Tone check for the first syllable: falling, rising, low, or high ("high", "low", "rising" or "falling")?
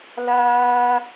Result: high